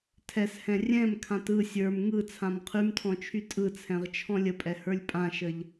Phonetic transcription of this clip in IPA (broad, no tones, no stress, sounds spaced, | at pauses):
tʰ ɛ s h ɛ̃ rʲ ɛ̃ m kʰ ã t ɯ sʲ ə˞ m ŋ ɯ t͡sʰ ã m qʰ y m tʰ ɔ̃ t͡ʃʰ y tʼ ɯ t͡sʰ ɛ̃ ʁ t͡ʃʰ ɔ̃ lʲ ə pʼ ɛ h ə˞ lʲ pʼ ã ʃ ə ʎ